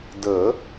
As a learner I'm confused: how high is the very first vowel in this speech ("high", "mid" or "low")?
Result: mid